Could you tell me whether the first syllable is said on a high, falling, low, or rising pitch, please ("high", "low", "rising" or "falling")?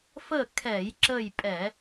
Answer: falling